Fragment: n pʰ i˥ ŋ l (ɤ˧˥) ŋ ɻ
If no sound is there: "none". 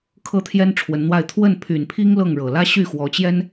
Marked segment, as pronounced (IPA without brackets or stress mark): ɤ˥˩